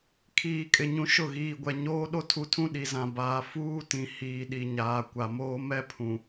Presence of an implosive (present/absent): present